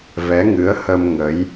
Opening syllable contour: rising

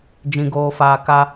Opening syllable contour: low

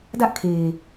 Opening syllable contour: high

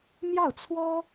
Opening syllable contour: falling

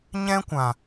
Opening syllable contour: high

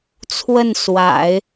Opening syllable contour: falling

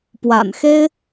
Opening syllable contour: low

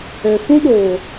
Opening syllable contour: low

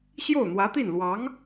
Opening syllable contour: falling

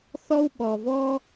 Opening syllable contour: high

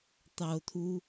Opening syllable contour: low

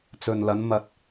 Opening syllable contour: low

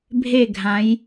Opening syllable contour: falling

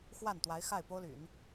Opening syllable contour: falling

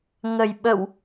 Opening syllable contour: low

